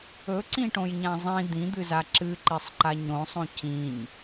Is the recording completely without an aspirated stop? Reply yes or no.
yes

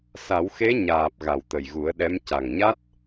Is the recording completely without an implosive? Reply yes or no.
no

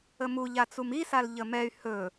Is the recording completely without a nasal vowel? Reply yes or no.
yes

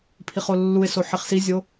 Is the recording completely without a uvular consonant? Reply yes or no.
no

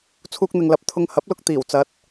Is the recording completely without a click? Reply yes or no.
yes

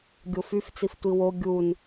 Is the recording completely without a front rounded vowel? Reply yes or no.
no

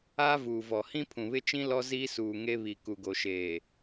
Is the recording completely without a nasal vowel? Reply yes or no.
no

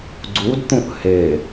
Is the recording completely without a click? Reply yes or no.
no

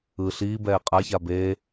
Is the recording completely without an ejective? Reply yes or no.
no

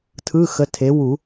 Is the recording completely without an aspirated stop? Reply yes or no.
no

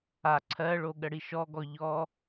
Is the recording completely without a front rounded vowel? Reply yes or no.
yes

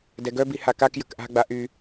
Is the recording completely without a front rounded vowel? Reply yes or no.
no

